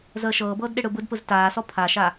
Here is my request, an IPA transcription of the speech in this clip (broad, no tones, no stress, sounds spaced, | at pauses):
z əː ʃ ɤː b ɤː d ɗ ɪ ɽ ɯ b ɯ d p ɯ z t aː s ɔ pʰ a ʃ a